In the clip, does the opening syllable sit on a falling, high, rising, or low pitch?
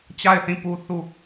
falling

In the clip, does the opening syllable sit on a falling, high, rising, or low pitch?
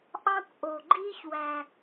high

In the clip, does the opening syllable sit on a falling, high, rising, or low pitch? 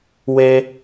high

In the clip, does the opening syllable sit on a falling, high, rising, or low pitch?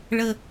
low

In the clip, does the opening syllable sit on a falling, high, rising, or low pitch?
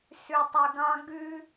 low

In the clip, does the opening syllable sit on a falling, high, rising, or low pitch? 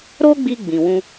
high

